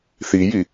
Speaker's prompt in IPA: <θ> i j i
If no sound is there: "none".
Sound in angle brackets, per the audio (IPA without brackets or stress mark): θ